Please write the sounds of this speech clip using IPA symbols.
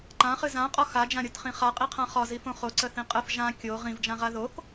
ǃ ã χ ɨ z ã qʼ ɒ x a d͡ʒ ã ɾʲ o t χ ĩ χ a qʼ i qʰ ã χ ɒ z i f õ χ o ǀ ə θ ĩ qʼ ə f ʒ ã kʲ o ʁ ĩ v d͡ʒ ã ʁ a ð o k

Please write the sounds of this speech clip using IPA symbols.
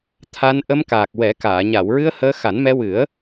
t̪ʰ a˧ n ʔ ə˧ m k aː˨˩ k̚ w ɛ˨˩˦ k aː˨˩˨ ɲ a˨˩˨ w ɹ ɨ˧ ə̯ h əː˧ x a˨˩˦ n m ɛ˧ w ɨ˨˩˦ ə̯

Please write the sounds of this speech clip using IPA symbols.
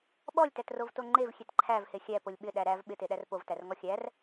ɓ ɔ lʲ t æ t r o v t o ŋ͡ǃ e v xʲ e t ǃʰ æ v h e xʲ æ p o lʲ ɓ ɪ ɗ æ ɾ æ v ɓ ɪ t e ɗ æ r p o v t æ r ŋ ɔ xʲ æ r

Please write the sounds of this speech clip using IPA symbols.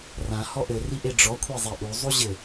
r ã h ɔ ʔ ɘ r i ʔ e ɖ͡ʐ ɔ kʷʰ e zˤ e ʔ u zˤ u ʑ ɘ

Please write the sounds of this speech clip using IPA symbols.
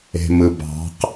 e̤ m ɯ b ɑ̤ q

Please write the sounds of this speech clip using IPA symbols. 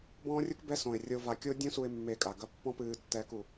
b ɔ̃ː˦ rʲ u˦ k b ɛ˦ s õ˨ ɪ̯ rʲ o˧ v a˧ kʲ o˦ dʲ ũ˦ s u˧ ɪ̯ mː e˧ kʼ a˨ ɡ ɐ˦ pː ɔ̃˦ p ɨː˧ tː ɛː˦ k u˧

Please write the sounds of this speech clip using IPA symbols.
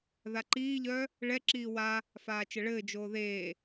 ð a ǃ iː ʎ œː | ɭ ɛ ǁ iː w a | f aː t͡ʃ ɘ ɭ ɘː d͡ʒ oː ð eː

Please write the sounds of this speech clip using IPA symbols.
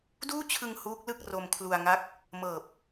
d uː˥˩ t͡ɕʰ ɯ˧ ŋ h uː˦˥ k̚ l ɯ˥˩ k̚ r o˧ m kʰ l u˧ a̯ ŋ a˦˥ k̚ | m ɤː˨˩ p̚

